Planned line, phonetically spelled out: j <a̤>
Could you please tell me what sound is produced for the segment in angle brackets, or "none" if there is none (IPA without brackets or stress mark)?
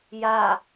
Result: a